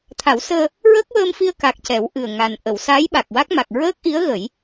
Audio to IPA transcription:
t̪ʰ a˨˩˦ w s əː˧ | ɹ əː˦˥ k̚ w əː˧ m f i˧ ə̯ k a˨˩ k̚ c ɛ˨˩˦ w ʔ ɨ˨˩ ə̯ ŋ a˨˩ n ʔ ə˨˩˨ w s a˧˥ j ɓ a˨˩ k̚ w a˦˥ k̚ m a˨˩ k̚ ɹ əː˦˥ k̚ ʔ i˧˥ ə̯ ɣ ə˨˩˦ j

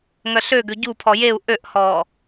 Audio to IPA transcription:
ŋ œ ɬ ø ɡ ø ɟ u pʰ ɔ j e u̯ ʔ ø ʔ h ɔː

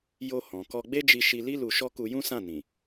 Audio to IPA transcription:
j o˧ h ɔ̃˨ k ɔ˧ ɡ͡b e˦ d͡ʒ i˧ ʃ i˧ l i˦ l u˧ ʃ ɔ˦ k u˧ j ũ˦ s ã˦˨ n ĩ˨

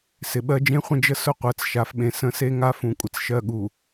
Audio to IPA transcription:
s ɪ˨ ɓ ɜ˦ d͡ʒ ẽ˦ χʷ ə̃˦ d͡ʒ ə˦ s ʊ˦ qʷ ɜ˨ t͡s ʃ a˨ f ɓ ẽ˨ s ə̃˦ s e˦ ŋ a˦ f ũ˨ kʷʼ ɪ˨ t͡s ʃ ɜ˦˨ ɠ u˨

